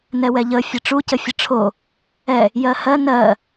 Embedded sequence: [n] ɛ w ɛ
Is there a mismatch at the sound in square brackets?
no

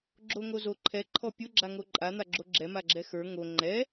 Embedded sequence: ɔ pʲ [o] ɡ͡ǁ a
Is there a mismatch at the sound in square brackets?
no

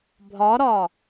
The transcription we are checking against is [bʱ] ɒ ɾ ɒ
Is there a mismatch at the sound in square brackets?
no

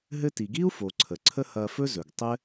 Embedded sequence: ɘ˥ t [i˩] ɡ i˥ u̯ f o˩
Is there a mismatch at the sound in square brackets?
no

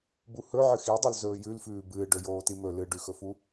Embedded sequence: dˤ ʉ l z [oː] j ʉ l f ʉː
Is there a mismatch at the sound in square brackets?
yes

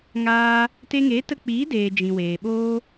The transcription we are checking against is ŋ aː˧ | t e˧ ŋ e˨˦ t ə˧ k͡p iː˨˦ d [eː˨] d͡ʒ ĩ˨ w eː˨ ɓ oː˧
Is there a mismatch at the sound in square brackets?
no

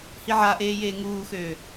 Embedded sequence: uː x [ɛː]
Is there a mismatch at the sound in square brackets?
yes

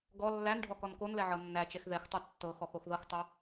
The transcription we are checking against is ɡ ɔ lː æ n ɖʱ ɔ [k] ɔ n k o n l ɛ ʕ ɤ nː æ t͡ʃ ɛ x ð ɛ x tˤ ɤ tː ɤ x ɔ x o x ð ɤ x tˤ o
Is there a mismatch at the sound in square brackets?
no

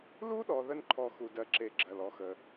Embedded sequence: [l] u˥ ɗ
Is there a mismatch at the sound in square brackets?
no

